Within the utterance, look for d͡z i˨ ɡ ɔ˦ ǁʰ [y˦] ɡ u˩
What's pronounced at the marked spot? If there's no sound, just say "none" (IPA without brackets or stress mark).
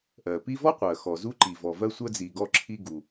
i˦